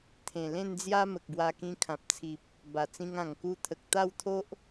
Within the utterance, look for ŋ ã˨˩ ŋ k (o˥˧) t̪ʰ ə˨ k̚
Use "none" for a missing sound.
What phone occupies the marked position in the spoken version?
u˥˧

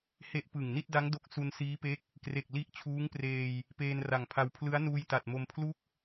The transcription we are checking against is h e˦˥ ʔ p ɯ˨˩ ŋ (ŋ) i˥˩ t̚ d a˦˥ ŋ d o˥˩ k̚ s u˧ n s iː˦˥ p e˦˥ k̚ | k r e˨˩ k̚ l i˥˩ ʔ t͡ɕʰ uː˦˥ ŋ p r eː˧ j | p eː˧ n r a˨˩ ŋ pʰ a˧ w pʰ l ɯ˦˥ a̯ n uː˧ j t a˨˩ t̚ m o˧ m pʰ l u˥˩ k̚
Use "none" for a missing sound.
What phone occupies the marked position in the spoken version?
n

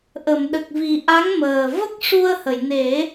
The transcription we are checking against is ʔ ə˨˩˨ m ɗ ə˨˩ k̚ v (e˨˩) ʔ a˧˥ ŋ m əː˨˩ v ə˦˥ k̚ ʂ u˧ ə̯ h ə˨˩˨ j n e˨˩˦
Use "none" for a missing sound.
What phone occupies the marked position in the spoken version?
i˨˩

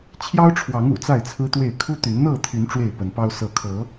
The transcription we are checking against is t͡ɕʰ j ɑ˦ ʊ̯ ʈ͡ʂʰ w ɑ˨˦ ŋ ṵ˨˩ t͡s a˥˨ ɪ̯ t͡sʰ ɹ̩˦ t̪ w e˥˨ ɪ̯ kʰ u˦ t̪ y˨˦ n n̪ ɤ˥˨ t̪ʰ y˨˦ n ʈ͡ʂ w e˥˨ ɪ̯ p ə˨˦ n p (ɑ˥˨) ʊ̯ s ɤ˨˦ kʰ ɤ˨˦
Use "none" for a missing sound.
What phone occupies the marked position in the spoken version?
ɑ˦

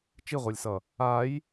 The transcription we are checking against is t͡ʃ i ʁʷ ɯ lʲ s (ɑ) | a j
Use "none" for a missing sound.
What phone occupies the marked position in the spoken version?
ʌ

